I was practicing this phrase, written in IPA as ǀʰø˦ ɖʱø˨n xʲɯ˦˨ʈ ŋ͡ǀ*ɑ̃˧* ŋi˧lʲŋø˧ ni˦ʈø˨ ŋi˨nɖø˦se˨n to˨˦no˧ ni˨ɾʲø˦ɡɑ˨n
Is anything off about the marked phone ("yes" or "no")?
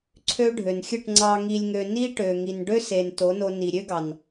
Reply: yes